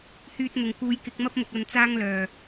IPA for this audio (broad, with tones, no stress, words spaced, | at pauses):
hyː˧t̚n̪ʊ˨˩ŋ kuː˨˧jkɪ˨˥k̚mɐ˥p̚mʊ˨k̚ ɐ˧nt͡saː˥ŋlœː˨˩